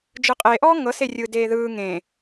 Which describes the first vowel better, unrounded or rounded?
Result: unrounded